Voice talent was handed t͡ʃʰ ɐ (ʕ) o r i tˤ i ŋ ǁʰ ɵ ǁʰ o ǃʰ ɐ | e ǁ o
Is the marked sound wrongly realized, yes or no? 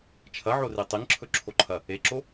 no